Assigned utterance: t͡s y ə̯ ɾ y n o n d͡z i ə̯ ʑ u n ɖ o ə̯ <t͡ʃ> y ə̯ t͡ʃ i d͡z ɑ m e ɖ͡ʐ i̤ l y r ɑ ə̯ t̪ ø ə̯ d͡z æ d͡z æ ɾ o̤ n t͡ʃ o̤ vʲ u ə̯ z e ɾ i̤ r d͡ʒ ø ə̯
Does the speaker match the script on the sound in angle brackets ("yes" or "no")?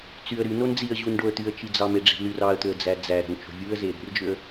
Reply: no